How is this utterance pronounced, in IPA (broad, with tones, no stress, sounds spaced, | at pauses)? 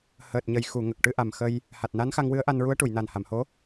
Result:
h əː˨˩ t̚ ɲ ə˨˩ j x u˨˩˨ ŋ ə˨˩ k̚ ʈ ɨ˧ ʔ a˨˩ m x ə˧ j | h a˨˩ t̚ n a˧˥ n x a˧ ŋ w ɨ˧˥ ə̯ ʔ a˧ n ɹ u˧˥ ə̯ ʈ u˨˩˨ j n a˨˩ n h a˨˩˨ m h o˧˥